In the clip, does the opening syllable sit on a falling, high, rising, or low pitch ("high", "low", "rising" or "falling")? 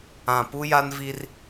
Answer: low